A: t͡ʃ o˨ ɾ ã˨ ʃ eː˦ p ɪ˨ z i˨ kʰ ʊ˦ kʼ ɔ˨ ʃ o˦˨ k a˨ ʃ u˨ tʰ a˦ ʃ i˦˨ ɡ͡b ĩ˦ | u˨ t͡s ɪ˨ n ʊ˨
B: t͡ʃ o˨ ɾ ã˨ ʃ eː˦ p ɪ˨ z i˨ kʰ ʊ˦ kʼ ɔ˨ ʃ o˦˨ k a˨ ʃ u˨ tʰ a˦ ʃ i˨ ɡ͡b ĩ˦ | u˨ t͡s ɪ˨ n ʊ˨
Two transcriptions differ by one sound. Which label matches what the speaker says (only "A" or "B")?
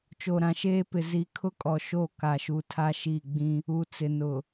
A